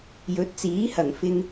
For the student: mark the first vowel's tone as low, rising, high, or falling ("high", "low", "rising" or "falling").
rising